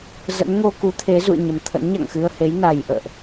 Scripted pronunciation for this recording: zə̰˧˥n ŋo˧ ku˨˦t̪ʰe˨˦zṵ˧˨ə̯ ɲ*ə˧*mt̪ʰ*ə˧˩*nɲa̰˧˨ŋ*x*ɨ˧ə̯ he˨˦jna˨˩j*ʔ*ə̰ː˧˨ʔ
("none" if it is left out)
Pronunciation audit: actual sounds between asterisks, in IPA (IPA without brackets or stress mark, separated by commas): ə˨˩, ə̰˧˥, x, ʔ